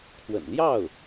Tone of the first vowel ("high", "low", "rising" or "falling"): low